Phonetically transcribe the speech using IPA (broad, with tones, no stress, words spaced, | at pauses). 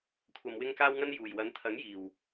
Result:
kʷʰɐ˧mwɪ˥ŋkaː˥wŋɐ˥n juː˨˩jwɐ˨˥nt̪ʰɐ˨˥ŋ jiː˨˩w